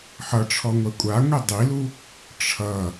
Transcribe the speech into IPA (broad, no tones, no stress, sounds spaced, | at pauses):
ħ ʌ ʈ͡ʂʰ ɔ ŋʷ ɛ kʷʼ a ŋʷ i dˤ i l u | ʈ͡ʂʰ ʌ